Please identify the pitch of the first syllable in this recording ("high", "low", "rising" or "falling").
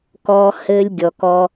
high